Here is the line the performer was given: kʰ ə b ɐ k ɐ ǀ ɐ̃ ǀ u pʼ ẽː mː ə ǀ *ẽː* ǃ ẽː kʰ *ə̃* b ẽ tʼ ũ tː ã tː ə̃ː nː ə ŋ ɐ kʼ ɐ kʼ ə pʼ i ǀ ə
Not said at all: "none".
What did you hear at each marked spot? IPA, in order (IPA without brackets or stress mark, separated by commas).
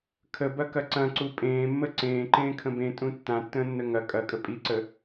ẽː, ə̃